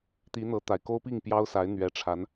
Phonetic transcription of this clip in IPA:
t̪ i˧˥ n̪ ɤ˧˥ t̪ a˨˩ ɪ̯ k o˥ ʊ̯ p i˥˩ ŋ p j ɑ˥ ʊ̯ s a˧˥ ɪ̯ n̪ ɥ ɛ˧˥ ʈ͡ʂʰ a˧˥ n

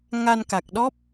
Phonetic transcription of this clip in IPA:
ŋ a˧ n k a˨˩ k̚ ɗ ɔ˦˥ p̚

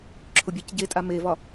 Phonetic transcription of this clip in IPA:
ǁʰ ʊ bʲ ɛ c ɟ e tʼ a m e v ɒ

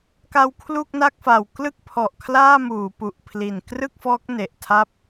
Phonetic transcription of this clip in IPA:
k a˧ w kʰ l u˥˩ k̚ n a˥˩ k̚ f a˨˩ w k l ɯ˥˩ k̚ pʰ ɔ˨˩ ʔ kʰ l aː˥˩ m uː˩˦ p u˨˩ ʔ pʰ l i˨˩ n k r ɯ˥˩ k̚ f ɔː˦˥ k̚ n e˨˩ ʔ tʰ a˥˩ p̚

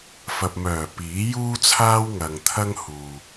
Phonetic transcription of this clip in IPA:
f ɐ˨ p̚ m œː˨˩ p iː˨˥ j uː˥ t͡sʰ aː˥ w ŋ ɐ˨ ŋ t̪ʰ ɐ˥ ŋ h uː˨

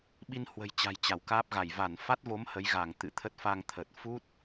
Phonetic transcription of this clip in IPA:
ɓ i˧ n h w ə̤˨˩ j t͡ɕ a̤˨˩ j t͡ɕ a˧˩ w k aː˦˥ p̚ ɣ a˧˩ j v a˧˩ n f a˦˥ t̚ v o˨˦ m h ə˨˦ j ɣ a˧˩ ŋ t̪ ɨ̰˧˨ t̪ʰ ə˦˥ t̚ f a˧ ŋ t̪ʰ ə˨˩ t̚ f u˦˥ t̚

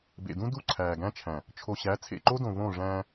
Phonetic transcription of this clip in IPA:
b ḛ˨ d ũ˦ d u˦˨ ǀʰ æː˨ ɡ æ̃˦ t͡ʃʰ æ̃˨ | t͡ʃʰ o˨ ɕ æ˨˦ t͡sʰ ḛ˨ ǃ o˦ d õ˨ v õ˦˨ ʐ æ̃ː˦

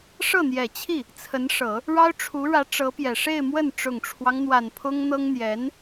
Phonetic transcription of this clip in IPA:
ʂ ɤ˥˩ n̪ j ɛ˨˩ t͡ɕʰ i˥˩ | t͡sʰ ə˧˥ n ʂ ɤ˨˩˦ | ɻ ɑ˥ ʊ̯ ʈ͡ʂʰ u˧˥ ɻ ä˧˥ ʈ͡ʂ ɤ˧˥ p j ɛ˨˩ ʂ e˥˧ ɪ̯ m w ə˥˩ n ʈ͡ʂ ʊ˨˩ ŋ ʈ͡ʂʰ w ɑ˦ ŋ n̪ w a˨˩ n pʰ ʊ˥ ŋ n̪ ɤ˥ ŋ n̪ j ɛ˧˥ n

